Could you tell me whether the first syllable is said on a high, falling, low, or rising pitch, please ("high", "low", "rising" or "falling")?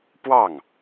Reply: falling